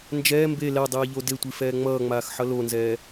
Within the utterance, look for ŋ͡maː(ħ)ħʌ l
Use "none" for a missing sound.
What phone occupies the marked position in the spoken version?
x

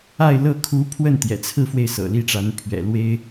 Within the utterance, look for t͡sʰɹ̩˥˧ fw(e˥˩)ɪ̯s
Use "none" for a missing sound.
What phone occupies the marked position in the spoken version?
e˥˩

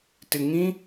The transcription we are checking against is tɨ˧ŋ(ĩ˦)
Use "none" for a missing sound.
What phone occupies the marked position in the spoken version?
ĩ˦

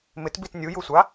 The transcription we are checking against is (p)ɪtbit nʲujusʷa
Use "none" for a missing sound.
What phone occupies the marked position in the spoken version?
m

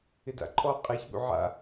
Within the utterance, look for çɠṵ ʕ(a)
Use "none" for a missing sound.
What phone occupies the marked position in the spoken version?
a̰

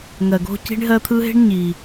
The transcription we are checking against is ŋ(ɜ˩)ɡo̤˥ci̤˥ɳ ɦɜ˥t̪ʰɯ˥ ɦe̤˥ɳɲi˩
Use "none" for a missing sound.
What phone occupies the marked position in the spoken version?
ɜ˩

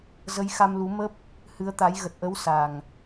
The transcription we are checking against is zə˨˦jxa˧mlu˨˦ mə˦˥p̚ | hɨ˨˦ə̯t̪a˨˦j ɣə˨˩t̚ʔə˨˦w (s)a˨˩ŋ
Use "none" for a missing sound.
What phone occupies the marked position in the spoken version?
s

